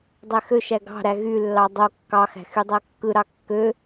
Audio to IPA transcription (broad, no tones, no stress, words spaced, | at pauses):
dˤæxøʃæ ɡɑ̤ɾæ ɣylːɑ dˤo kːɑxæ̤ xydˤækːɯɾɑ kːø